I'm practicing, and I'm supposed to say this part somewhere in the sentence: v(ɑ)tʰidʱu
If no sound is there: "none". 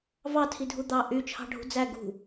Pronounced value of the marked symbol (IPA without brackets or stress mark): ɑ